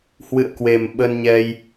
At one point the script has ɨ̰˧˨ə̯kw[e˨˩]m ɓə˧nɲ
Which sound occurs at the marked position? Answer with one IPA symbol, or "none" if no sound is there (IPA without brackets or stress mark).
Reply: e˨˩